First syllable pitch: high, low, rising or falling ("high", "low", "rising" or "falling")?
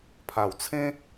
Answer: low